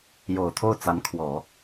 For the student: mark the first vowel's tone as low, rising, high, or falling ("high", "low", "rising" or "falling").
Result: low